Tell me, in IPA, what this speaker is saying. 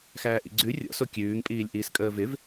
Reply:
xæːʔḭɡ͡ǀʉ rʲɔ̰so kʲʉːŋpʼiːlʲ ʔiːskʼəːvɪv

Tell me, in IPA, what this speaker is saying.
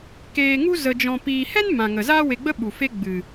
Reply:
keː˧ŋu˦ zə˧d͡ʒɔ̃˧piː˧ hɛ˦nmã˨ŋə˨ zaː˦we˧ɡ͡bə˦ ɓu˨fe˦ɡ͡bɨ˨

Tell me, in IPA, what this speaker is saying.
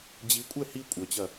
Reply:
d͡ʑikʷʼɛ hi kʷʼœt͡ɕɐ

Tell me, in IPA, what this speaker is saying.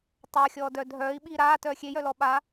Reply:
tˤaxʲɔːdœ dʱœːi̯ɓiː ɾaːtœː xʲejœlɔ ɓa

